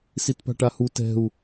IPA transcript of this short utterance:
s i t p a̤ ʈ a h u t ɛ̤ u̯

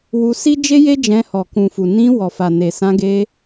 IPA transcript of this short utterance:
w u˧ s i˦ d͡ʒ e˦ j e˦ d͡ʒ ɛ̃˧ h ɔ˨ k ũ˨ f u˨ n ĩ˧ w ɔ˨ f a˨ n e˨ s ã˧ ɡ e˧

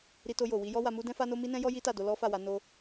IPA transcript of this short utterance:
ɾ i˧ t o˧ j o˨ w i˧ j ɔ˦ w a˧ m u˦ d ɛ̃˦ f a˦ n o˦ m i˦ n ɛ̃˦ j ɔ˦ j i˦ t a˦˨ d o˧ l ɔ˦ f a˦˨ w a˨˦ n o˧

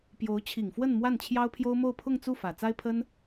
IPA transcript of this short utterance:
p j o˧˥ ʊ̯ t͡ɕʰ i˨˩ ŋ f w ə˥˧ n m w a˥˩ n t͡ɕʰ j ɑ˥ ʊ̯ pʰ j o˥ ʊ̯ m o˥˧ ʊ̯ pʰ ʊ˥˧ ŋ t͡s u˥˩ f ä˨˩ t͡s a˥ ɪ̯ pʰ ə˥ n

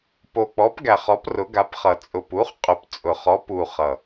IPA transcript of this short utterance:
p o˨˩ k͡p ɔ˩˥ p ɡ æ˨˩ χ ɔ˩˥ p r ʊ˩˥ ɡ a˩˥ p χ ʌ˨˩ t͡sʼ ʊ˨˩ p u˩˥ χ qʼ ʊ˨˩ p t͡sʼ ʊ˨˩ χ ɔ˩˥ p u˨˩ χ ʌ˨˩

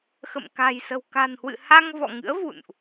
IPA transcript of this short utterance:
x ə̰˧˨ m k a̤˨˩ j s ə̤˨˩ w k a̤˨˩ n h w ɨ̰˧˨ h a˧ ŋ v ɔ̰˧˨ ŋ ɨ̰˧˥ ə̯ v ṵ˧˨ n ʔ

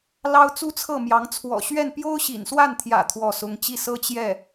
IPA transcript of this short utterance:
l ɑ˥ ʊ̯ t͡s u˥ t͡sʰ ɤ˥˩ m j ɑ˧˥ ŋ t͡sʰ w ɔ̰˨˩ ɕ ɥ ɛ˥˩ n p j o˥ ʊ̯ ɕ ḭ˨˩ n s w a˥˩ n t̪ʰ j ä̰˨˩ t̪ʰ w ɔ˥˩ s ʊ˥ ŋ t͡ɕ i˥˩ s ɤ˥ t͡ɕ j ɛ˥˩

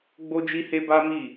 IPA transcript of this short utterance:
ɡ͡b o˦ d͡ʒ i˦ h e˦ b a˦ m i˦˨

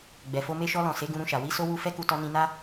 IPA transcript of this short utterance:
ɡ͡b ɛ˨ f o˧ m e˧ ʃ ɔ˧ l ɔ̃˨ s e˨˦ ɡ ũ˧ ɾ ũ˧ ʃ a˨ w i˨˦ s o˧ w u˧ f ɛ˦ k u˧ t ɔ˧ n ĩ˧ n a˦

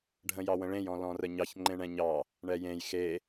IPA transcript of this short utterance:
ɖʱ ə̃ j ɑ w ə̃ ɭ ẽ j ɔ̃ l ɔ̃ r ə ɲ ɑ ç ŋ͡ǃ ẽ ɳ ɛ̃ ɲ ɑ | ɳ ɛ j ẽ j x e

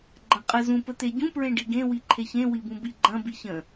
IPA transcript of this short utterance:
ɡ͡ǃ ɐ̃ qʼ ə z ũ p ə t̪ e ɟ ũ p ɹ ẽ ɖ i ɡ ẽ w i ǃʰ e ç ẽ w i b ũ b i ɡ͡ǃ ɐ̃ b i ç ə̃

